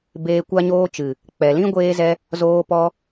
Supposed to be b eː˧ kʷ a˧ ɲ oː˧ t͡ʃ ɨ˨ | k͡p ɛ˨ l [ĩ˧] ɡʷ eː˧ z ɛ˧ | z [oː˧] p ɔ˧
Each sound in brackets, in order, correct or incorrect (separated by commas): incorrect, correct